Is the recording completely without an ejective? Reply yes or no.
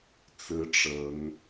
yes